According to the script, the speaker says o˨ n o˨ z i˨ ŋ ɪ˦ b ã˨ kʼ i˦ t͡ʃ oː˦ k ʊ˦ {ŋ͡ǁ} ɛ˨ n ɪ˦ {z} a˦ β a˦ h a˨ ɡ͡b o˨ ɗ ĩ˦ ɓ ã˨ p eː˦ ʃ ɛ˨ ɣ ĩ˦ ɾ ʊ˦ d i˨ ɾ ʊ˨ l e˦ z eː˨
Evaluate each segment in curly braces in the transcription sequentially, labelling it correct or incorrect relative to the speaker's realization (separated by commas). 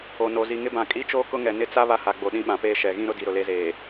incorrect, incorrect